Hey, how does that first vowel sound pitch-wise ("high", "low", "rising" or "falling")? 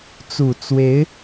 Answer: low